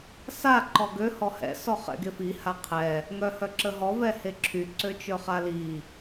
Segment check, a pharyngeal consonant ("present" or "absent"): absent